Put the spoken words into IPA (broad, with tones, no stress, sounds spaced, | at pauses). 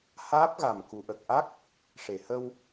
h aː˦˥ p̚ ɣ a˨˩ m k u˨˩˨ ʔ ə˨˩ k̚ ʔ a˦˥ k̚ | ʂ e˨˩˨ h ə˧ w